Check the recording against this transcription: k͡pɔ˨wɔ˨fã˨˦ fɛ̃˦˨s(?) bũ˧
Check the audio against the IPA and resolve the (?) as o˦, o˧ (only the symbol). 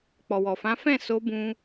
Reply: o˧